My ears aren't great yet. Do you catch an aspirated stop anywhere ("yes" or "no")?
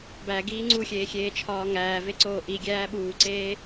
yes